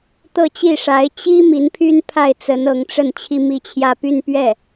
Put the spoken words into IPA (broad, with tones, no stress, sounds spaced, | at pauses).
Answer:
t̪ ɤ˥˧ t͡ɕ i˥˩ ʂ a˧˥ ɪ̯ t͡ɕ i˥ m i˧˥ n pʰ y˥ n pʰ a˥˩ ɪ̯ t͡s ə˧˥ n ɤ˧˥ ŋ ʈ͡ʂ ə˥˩ n t͡ɕʰ i˥ m i˥˧ t͡ɕʰ j ä˥˧ p y˥˧ n p ɥ ɛ˥˩